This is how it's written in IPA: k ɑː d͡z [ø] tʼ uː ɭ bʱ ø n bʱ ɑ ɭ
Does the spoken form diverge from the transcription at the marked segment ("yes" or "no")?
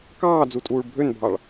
yes